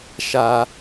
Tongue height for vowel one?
low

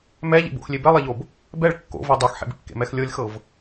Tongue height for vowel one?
mid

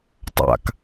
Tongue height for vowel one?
low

